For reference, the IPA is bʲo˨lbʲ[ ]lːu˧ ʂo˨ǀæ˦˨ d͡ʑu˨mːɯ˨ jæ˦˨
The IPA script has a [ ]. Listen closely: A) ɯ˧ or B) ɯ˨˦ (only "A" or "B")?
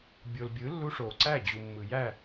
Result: B